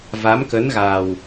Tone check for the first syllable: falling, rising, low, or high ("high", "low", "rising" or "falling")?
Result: rising